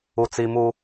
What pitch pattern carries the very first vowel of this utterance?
high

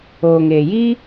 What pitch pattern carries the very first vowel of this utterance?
low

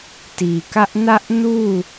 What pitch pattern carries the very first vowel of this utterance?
low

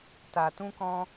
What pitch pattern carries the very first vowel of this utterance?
low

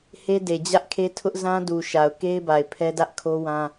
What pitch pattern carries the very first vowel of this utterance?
high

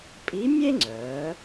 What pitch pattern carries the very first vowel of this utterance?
rising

